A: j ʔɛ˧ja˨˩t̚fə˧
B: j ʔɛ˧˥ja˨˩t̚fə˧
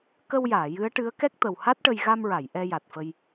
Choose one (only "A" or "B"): A